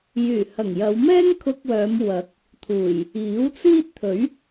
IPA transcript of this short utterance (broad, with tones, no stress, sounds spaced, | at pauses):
j yː˨˩ h ɐ˨˩ ŋ j ɐ˨˧ w m ɛː˥ ŋ kʰ ʊ˧ k̚ w œː˨˧ m w ɐ˨˥ k̚ | t̪ʰ uː˨˩ j | iː˨˥ w t͡s iː˥ t̚ t̪ʰ ɵ˨˥ ɥ